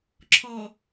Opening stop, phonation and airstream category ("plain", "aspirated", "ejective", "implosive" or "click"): click